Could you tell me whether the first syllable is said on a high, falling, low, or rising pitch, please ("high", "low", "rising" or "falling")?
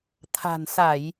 low